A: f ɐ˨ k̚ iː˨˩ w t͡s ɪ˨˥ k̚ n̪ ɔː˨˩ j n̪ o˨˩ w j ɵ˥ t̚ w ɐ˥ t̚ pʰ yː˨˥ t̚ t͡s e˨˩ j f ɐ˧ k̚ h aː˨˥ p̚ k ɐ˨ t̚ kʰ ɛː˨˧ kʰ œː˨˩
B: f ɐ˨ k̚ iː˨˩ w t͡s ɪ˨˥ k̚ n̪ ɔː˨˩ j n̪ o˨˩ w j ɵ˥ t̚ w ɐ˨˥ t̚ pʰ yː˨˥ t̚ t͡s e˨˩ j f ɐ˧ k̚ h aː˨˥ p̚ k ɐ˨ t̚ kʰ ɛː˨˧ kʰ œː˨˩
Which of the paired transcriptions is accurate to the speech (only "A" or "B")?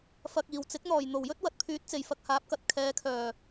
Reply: B